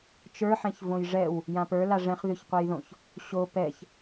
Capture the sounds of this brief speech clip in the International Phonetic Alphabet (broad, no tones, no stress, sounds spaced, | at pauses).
t͡ʃ ə˞ ħ ɛ̃ ç v õ j ʐ ɛ w | j ã p ə˞ l a ʐ ɛ̃ χ ð ʉ ç qʷ ɛ j ð õ ç | ɕ o p ɛ ç